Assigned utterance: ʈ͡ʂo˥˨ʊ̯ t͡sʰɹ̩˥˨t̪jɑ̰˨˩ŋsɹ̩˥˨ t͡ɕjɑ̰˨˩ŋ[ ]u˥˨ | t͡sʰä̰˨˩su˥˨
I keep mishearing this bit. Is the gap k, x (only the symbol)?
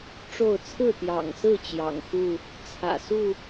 x